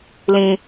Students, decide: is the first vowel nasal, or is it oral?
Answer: nasal